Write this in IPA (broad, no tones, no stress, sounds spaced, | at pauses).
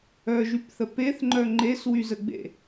œ ʒ y p θ ə p e θ ŋ͡ǃ œ ŋ͡ǃ e s w y z ə ɡ͡b ḛ